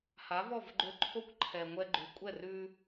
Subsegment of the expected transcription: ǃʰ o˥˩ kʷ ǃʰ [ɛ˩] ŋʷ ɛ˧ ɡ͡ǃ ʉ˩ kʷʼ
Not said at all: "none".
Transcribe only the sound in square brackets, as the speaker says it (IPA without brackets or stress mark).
ɛ˩